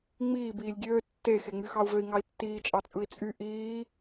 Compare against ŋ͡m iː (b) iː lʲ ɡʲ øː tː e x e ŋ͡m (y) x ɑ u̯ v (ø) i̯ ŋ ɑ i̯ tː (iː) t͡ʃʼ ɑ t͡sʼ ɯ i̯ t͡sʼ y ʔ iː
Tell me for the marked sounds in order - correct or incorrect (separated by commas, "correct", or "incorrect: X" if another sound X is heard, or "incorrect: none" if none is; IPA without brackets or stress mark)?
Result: correct, correct, correct, correct